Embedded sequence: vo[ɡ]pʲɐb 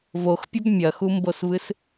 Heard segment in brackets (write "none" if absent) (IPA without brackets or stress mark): x